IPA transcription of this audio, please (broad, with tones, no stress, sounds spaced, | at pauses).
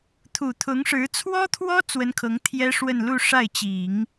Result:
t̪ʰ u˨˩ t̪ʰ ʊ˧˥ ŋ ʂ ɻ̩˧˥ t͡sʰ w ɔ˥ t̪ʰ w ɔ˥ t͡s w ə˥ n kʰ ɤ˧˥ ŋ t̪ʰ j ɛ˥ ʂ w ə˥˧ n l u˥˧ ʂ a˥˩ ɪ̯ t͡ɕ i˨˩˦ ŋ